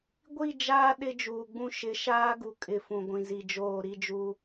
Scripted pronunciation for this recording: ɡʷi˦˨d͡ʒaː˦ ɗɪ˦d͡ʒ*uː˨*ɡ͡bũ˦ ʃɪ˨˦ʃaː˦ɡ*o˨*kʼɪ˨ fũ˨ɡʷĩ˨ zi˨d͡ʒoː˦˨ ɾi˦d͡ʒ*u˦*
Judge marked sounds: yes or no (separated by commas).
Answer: yes, no, yes